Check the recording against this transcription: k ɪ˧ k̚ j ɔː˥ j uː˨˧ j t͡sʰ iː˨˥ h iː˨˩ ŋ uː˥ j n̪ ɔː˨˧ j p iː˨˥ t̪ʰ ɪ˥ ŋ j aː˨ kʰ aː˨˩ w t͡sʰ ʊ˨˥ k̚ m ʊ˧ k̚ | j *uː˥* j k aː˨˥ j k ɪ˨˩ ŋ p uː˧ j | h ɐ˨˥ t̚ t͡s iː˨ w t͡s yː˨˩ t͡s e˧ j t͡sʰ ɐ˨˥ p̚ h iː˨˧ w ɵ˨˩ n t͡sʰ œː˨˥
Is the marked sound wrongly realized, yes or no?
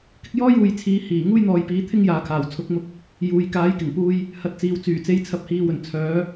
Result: yes